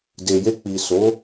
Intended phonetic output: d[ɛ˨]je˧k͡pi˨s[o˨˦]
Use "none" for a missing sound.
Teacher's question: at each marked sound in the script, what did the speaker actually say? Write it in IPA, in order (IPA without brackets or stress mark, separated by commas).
e˨, o˨˦